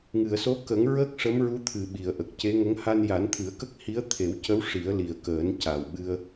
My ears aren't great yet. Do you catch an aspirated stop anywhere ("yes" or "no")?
yes